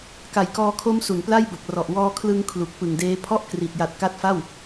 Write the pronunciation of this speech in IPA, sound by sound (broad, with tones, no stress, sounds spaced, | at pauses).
k a˨˩ j k ɔː˧ kʰ o˦˥ m s u˩˦ n p l a˥˩ j b o˨˩ k̚ r ɔ˨˩ ʔ w ɔː˧ kʰ l ɯ˧ ŋ kʰ l u˨˩ k̚ p ɯ˨˩ ŋ d eː˦˥ pʰ ɔ˥˩ ʔ k r i˨˩ t̚ j a˨˩ t̚ k a˦˥ t̚ f a˥˩ w